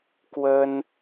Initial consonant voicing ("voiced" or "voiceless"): voiceless